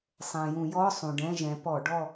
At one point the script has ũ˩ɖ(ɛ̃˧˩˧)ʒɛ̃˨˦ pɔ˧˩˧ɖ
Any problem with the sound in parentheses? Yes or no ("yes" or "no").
yes